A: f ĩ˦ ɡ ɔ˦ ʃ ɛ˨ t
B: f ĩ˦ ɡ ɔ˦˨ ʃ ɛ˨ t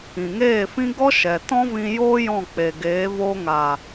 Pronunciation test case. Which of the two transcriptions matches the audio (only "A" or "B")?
A